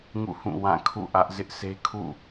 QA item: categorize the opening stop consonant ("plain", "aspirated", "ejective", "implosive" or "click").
aspirated